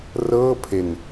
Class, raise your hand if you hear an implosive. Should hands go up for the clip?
no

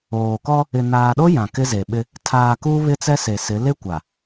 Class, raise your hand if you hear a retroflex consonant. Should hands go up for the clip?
no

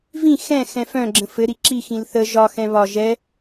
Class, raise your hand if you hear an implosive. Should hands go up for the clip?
no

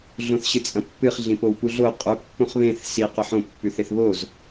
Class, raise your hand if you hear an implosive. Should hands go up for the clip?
no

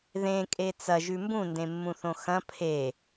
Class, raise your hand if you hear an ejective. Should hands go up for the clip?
yes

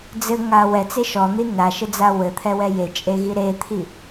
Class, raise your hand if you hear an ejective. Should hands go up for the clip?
yes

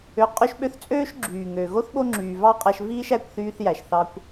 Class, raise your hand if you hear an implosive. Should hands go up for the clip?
yes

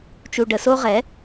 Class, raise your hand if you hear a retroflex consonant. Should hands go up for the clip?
yes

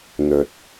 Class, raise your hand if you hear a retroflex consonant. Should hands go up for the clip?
no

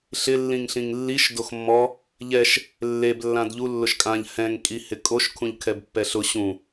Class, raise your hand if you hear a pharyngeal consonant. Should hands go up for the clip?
no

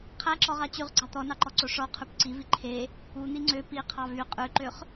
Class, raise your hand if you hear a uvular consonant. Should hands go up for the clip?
yes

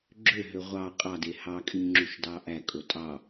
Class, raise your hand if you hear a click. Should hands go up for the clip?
yes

